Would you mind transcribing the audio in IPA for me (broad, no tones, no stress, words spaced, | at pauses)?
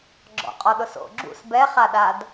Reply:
ɡ͡ǁɔ̰qʼɔɗʊ so̰ ɡ͡ǁṵs bɛχaɗad